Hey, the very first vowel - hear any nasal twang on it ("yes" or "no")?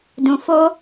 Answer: yes